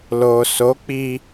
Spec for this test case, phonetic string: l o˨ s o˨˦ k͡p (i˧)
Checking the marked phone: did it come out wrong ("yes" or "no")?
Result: no